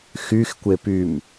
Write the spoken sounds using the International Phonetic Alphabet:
x y x kʷ e p y m

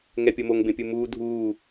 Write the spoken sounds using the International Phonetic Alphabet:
ŋ ɛ pʲ o m o ŋ b ẽ pʲ u m uː dʱ uː

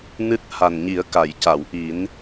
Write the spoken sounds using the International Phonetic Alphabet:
n ɨ˦˥ t̚ h a˨˩ n ɲ i˨˩˦ ə̯ k a˨˩˨ j c a˨˩˨ w ʔ i˨˩˦ n

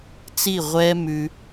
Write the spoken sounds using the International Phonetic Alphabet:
t͡s i˦˨ ʁʷ ɛ˦ m ʉ˧

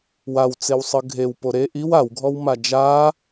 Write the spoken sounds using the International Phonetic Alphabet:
w a w t͡s e w sˤ ɯ ɡʱ e w p o ɾ e ʔ i w a w ɡʱ ɔ w m a d͡ʒ a

